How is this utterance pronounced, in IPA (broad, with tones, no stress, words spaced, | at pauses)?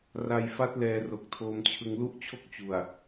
ra˧jfa˦˥t̚ lɛː˧ro˨˩k̚tʰoː˧mt͡ɕʰɯ˧ŋ lu˥˩ʔt͡ɕʰo˥˩k̚ t͡ɕu˨˩a̯